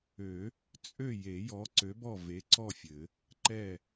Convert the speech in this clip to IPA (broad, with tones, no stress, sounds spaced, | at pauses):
ø˨˩˦ | t͡sʼ ø˥˨ j e˨˩˦ j ɔ˨˥ ǀ ø˨˥ b ɔ˥˨ v e˨˥ ǀ ɔ˥˨ fʲ ɘ˨˩˦ | ǃ ɛ˥˨